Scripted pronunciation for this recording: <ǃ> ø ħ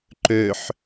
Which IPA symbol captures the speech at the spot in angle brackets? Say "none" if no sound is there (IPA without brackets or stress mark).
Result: ǃ